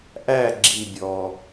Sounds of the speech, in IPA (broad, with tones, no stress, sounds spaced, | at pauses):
ʔ æ˦˨ ɡ͡ǁ i˨ bʲ ɔ˨